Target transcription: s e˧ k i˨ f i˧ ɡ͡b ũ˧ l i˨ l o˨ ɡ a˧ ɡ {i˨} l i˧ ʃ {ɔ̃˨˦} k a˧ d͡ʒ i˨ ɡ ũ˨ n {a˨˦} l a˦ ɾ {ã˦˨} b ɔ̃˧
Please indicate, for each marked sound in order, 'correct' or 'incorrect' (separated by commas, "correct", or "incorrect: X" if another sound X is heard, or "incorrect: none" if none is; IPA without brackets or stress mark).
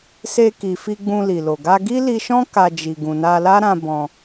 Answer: incorrect: i˦, incorrect: ɔ̃˦, incorrect: a˧, incorrect: ã˧